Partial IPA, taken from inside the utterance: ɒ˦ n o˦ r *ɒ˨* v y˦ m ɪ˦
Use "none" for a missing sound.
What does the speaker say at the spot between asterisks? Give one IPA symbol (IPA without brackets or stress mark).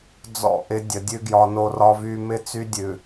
ɒ˦